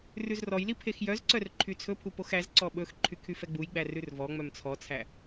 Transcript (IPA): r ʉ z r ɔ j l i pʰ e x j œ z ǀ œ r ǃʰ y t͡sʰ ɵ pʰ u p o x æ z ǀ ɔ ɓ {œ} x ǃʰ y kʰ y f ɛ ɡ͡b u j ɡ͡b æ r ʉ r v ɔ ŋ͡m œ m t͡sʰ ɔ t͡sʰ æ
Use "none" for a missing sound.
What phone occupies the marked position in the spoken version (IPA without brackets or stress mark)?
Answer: ɵ